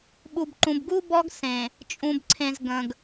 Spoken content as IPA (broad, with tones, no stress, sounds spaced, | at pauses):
ɓ u˨ b ǃ ũ˨ b ɡ u˦ b ɔ˦ ɡ s ẽ˨ | t͡ʃʼ ũ˨ b ǀʰ ẽ˨ z ɡ ə̃˨ ɡ